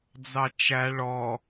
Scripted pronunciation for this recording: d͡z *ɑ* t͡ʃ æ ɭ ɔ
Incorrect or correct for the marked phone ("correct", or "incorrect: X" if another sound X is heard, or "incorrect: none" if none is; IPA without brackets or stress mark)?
correct